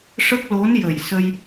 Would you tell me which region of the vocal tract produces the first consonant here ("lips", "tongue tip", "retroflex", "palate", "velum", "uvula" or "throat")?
retroflex